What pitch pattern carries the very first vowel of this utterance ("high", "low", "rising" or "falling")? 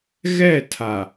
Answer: falling